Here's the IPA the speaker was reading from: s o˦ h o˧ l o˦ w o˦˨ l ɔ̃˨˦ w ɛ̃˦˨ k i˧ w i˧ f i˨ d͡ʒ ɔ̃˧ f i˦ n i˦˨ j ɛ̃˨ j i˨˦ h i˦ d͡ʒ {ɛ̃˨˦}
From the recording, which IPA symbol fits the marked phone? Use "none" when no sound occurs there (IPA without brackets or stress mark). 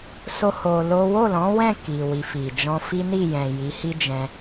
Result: ɛ̃˧